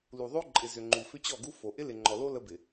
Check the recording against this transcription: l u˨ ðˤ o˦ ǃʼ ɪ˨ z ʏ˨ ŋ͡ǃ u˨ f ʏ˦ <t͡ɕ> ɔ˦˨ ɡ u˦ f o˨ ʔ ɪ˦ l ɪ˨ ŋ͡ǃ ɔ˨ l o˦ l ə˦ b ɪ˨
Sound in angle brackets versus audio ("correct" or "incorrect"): correct